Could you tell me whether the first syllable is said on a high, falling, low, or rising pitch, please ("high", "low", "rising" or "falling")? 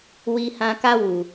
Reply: high